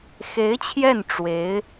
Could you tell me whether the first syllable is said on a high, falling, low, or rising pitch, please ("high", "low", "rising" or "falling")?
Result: rising